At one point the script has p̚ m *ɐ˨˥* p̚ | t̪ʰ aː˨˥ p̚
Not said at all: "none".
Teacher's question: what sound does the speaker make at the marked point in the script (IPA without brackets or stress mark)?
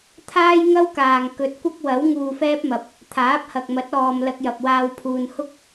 ɐ˨˥